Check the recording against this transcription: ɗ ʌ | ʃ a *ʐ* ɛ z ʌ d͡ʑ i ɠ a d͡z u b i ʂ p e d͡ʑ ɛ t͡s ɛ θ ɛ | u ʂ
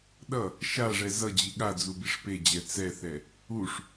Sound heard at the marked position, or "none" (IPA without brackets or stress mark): ʐ